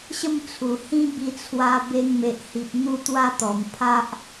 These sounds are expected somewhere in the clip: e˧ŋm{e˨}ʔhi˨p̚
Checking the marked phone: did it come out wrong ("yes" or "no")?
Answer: no